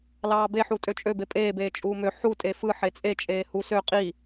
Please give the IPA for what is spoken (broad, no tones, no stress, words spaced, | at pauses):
lɑːbeħu tʼøt͡ʃʼøbe pʼeːbeː t͡ʃʼuːmø ħu tʼefɯ ħet͡sʼe t͡ʃʼeːhu sø qʼi